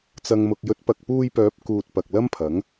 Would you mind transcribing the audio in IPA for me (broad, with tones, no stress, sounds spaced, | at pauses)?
t͡s ɐ˨ ŋ m ʊ˨ k̚ j ɵ˨˥ t̚ p ɐ˨ k̚ p uː˧ j p œː˨˥ p̚ k uː˨ t̚ p ɐ˨ k̚ l ɐ˥ m pʰ ɐ˨˥ ŋ